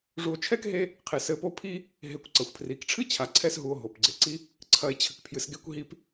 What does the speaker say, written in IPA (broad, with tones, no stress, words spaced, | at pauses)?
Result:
ʐu˨o̯t͡ʃʰɛ˥kɦe˦ | qʰe˩sɘ˨po˦pʰi˥ | ɦe˨kʷ ǀɐ˩xʷpʰri˩kʈ͡ʂʰɨ˥ t͡ɕʰa˩ǀʰɛ˥sɦu˨o̯ ɦo˩pɡ͡ǀe˩ǀi˥ | ǀʰɐ˨e̯t͡ɕʰɘ˩kpʰjɨ˩sɡe˦kʷ ɦi˦p